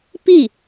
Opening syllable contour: falling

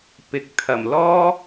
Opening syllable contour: rising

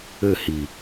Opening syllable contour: falling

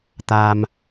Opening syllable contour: high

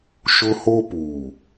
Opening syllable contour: high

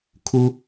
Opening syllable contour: high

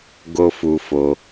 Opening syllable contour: high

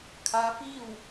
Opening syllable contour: rising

